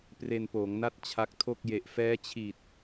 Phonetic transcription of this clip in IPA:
p r e˧ n p oː˩˦ ŋ n a˥˩ t̚ t͡ɕʰ a˦˥ k̚ tʰ o˥˩ k̚ j e˨˩ ʔ f ɛː˦˥ t͡ɕʰ i˨˩ t̚

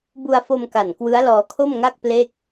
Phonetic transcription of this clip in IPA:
b u˧ a̯ f o˧ m k a˨˩ n k w ɯ˦˥ a̯ l ɔː˧ kʰ o˥˩ m ŋ a˥˩ k̚ p l e˥˩ k̚

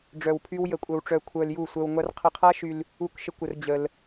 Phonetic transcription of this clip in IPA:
ɖ͡ʐ œ˧ w pʰ y˦ w j ə˧ kʷʼ œ˧ w ʈ͡ʂ œ˧ kʷʰ œ˧ l j u˦˨ sʷ œ˧ w ŋʷ a˦ r qʰ ə˧ qʰ a˦ ʃ y˧ l | u˦˨ k ʃ ə˦ kʷ ə˧ r d͡ʑ ə˧ l

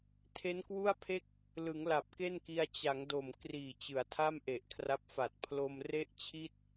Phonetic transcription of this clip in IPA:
tʰ e˦˥ n k w u˥˩ a̯ pʰ e˥˩ k̚ | l ɯ˩˦ ŋ l a˨˩ p̚ k e˥˩ n k i˧ a̯ t͡ɕ a˩˦ ŋ d o˨˩ m k r iː˨˩ t͡ɕ ɯ˩˦ a̯ tʰ a˥˩ m ʔ e˨˩ ʔ kʰ r a˦˥ p̚ f a˨˩ t̚ pʰ l o˧ m r e˥˩ ʔ t͡ɕʰ i˥˩ t̚

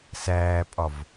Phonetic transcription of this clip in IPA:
s æː pʼ ɒ v

